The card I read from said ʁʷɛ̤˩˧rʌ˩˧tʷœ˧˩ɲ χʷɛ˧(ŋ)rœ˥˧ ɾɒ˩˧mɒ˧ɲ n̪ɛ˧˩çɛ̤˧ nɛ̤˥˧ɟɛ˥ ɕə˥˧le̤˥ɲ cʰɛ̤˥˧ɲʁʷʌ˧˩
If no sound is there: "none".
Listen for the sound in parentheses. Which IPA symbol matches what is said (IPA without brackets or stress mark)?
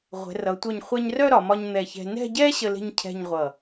ɲ